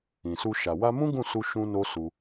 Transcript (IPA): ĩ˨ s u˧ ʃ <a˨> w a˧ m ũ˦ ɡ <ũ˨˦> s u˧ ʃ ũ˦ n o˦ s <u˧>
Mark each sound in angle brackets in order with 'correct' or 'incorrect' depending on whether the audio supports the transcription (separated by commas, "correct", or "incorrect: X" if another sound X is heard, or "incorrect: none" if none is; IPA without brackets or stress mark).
correct, incorrect: ũ˦˨, correct